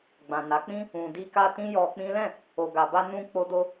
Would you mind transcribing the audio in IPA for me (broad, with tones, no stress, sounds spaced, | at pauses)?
ɡ͡b ã˨ n a˨˦ k͡p ĩ˦ | ũ˨ d i˧ k a˧ t ĩ˦ j ɔ˧ k͡p ĩ˦ l ɛ̃˦˨ | o˨ ɡ a˨ b a˧ n ũ˧ k͡p o˦ d o˦